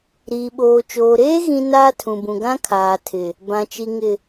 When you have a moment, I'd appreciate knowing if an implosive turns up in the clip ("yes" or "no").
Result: yes